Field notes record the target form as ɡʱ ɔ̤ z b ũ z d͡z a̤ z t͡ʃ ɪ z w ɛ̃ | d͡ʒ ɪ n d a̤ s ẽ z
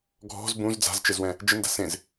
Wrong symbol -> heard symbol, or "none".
none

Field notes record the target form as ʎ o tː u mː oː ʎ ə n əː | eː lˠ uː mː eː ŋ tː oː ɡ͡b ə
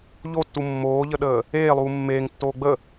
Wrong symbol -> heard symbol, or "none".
n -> ɗ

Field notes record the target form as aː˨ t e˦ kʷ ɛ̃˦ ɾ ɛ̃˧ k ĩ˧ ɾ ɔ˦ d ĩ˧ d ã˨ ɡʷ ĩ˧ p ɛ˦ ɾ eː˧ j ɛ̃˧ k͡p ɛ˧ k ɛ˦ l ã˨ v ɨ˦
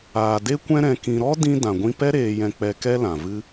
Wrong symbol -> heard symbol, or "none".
t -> d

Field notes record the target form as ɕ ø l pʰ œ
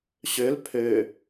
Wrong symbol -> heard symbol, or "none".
œ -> ø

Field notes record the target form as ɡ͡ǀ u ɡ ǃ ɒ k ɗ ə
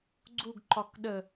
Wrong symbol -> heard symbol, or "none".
none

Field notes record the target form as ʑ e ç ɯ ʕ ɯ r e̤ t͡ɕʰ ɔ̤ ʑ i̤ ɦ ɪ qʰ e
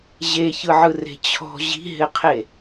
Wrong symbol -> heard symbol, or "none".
none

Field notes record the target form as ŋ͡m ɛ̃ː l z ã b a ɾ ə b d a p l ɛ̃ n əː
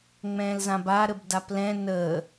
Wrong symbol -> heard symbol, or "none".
none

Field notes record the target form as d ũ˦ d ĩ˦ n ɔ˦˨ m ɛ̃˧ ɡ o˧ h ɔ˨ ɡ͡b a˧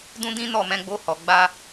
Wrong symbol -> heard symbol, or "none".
ɡ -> ɡ͡b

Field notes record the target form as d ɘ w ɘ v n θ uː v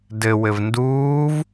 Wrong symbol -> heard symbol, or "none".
θ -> d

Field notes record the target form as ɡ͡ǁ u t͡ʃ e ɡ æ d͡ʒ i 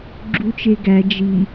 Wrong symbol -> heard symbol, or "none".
none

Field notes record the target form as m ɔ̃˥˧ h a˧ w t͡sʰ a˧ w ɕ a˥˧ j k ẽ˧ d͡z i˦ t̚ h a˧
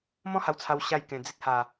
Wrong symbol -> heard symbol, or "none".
none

